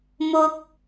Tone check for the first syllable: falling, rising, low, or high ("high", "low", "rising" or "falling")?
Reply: high